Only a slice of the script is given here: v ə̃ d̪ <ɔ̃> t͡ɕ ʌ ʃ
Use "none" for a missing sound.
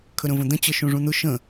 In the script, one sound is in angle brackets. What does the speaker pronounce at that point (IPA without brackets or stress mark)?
ə̃